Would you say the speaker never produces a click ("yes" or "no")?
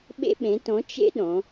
yes